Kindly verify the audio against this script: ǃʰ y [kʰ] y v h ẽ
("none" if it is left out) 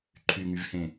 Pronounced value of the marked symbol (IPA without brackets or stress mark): ŋ